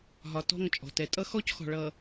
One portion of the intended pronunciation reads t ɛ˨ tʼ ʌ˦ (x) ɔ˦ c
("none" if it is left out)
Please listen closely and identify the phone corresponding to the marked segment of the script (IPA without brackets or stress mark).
x